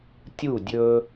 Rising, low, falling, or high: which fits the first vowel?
falling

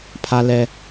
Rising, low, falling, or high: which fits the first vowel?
low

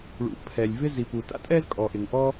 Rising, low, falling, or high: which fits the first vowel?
low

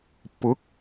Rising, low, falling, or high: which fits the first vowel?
rising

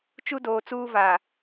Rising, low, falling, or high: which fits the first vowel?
high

